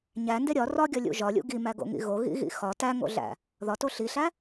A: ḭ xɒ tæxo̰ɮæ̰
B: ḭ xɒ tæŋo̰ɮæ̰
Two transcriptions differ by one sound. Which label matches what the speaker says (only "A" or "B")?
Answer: B